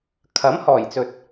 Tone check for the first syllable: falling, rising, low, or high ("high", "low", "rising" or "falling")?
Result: rising